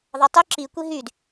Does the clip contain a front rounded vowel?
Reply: yes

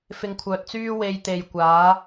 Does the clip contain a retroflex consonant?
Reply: no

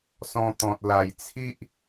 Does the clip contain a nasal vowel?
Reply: yes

